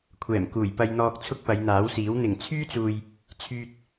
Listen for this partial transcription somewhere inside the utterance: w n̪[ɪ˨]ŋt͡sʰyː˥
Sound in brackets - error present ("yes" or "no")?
yes